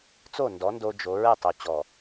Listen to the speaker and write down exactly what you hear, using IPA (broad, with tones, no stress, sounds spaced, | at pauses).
t͡s o˦˨ n d ɔ˨˦ n d o˦ d͡ʒ o˨˦ ɹ ɛ˦˨ tˤ o˨ t͡ɕ ɔ˨